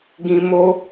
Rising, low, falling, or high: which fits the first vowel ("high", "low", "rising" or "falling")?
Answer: high